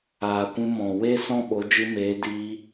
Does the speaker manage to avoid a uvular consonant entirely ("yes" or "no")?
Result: yes